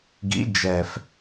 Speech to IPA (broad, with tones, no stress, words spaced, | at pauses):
ɡḭ˨˥ d͡ʒɛ˨˩f